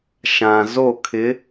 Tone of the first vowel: low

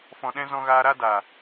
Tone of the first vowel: low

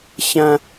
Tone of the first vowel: low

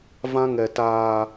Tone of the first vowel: high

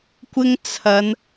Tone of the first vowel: high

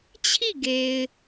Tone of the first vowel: falling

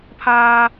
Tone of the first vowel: high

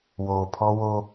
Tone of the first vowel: low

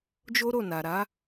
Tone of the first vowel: high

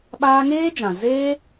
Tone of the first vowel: high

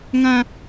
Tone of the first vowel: high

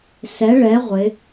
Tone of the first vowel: rising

